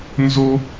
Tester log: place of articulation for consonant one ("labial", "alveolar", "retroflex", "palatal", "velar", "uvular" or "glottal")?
alveolar